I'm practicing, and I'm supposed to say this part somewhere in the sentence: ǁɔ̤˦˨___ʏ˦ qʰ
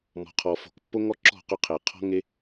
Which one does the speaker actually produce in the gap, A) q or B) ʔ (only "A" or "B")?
A